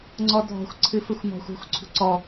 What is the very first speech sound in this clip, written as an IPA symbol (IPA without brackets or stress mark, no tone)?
ŋ͡ǀ